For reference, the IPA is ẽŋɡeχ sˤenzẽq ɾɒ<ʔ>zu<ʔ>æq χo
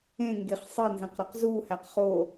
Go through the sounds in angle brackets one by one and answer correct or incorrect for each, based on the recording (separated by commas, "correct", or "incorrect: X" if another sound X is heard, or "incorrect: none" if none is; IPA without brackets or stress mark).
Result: incorrect: q, incorrect: h